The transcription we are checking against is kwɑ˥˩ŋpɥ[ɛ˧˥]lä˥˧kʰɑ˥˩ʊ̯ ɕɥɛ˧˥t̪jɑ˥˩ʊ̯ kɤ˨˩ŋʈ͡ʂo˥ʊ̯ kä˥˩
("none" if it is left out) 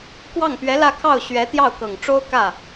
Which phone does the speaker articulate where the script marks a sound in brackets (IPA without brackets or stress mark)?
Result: ɛ˧˥